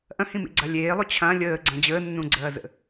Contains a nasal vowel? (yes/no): yes